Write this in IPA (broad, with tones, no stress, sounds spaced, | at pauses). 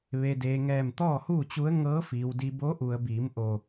ʋ e˩ d eː˩ ŋ ɛː˧˩ m t̪ ɔː˥˨ h uː˥˨ t͡ɕ u˧˥ ə̯ ŋ ɤː˧˥ f iː˩ w d i˧ b o˧˥ ʔ u˩ ə̯ b iː˩˧ m ʔ o˧˩